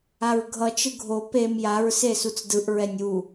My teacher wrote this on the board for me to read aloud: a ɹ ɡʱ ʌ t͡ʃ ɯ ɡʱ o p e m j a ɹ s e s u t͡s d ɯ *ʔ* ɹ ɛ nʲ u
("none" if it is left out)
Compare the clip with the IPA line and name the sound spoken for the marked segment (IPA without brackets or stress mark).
ʔ